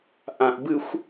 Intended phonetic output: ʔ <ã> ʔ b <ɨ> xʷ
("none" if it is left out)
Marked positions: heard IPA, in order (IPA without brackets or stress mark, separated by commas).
ã, ɨ